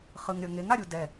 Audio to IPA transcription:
χ ɯ ŋ ɾʲ ʌ ŋ e ŋ a ɾʲ u d ɛ

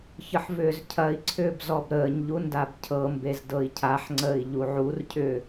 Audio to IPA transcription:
ç ə ħ v ʏː z cʰ ɐ i̯ ǀʰ ʏː b z ɔ b ɾ əː ɲ ʎ u n d a b cʰ ɤ m b e z d ɤ i̯ cʰ a ħ ŋ͡ǀ əː i̯ ʎ u ʕ u r cʰ ʏː

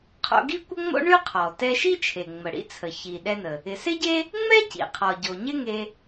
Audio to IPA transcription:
qʰ o̰˧ ɡ i˥ kʷ ə˥ ŋ͡m o̰˥ ɳ y˥ qʰ ɔ˩ t ɛ˧ ʃ i˥ t͡ʃʰ e˩ ŋ͡m ə˩ ɽ ḭ˥ t͡sʰ ə˩ ç i˩ ɗ ɛ˧ n ə˩ | ɪ˩ s ɪ˥ ɟ e˥ | ŋ͡m ɛ˥ c ḭ˩ qʰ ɔ˩ ɟ o˩ ɲ ɪ˥ ŋ e˧

